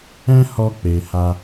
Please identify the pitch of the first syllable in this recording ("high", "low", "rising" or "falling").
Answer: high